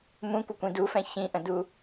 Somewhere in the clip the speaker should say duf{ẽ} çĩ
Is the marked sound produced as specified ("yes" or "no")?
no